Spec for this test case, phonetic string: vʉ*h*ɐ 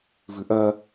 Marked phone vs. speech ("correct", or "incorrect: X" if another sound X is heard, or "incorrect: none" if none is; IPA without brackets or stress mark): incorrect: ʔ